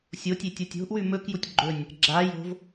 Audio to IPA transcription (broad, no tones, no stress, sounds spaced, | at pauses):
sʲ o tʲ e tʲ o tʲ o̤ ʔ w ʉ m ɵ k j u tʲ ɡ͡ǃ ɵ nʲ | ɡ͡ǁ a j o̤ v